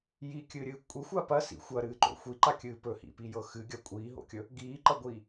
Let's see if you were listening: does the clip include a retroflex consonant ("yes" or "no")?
no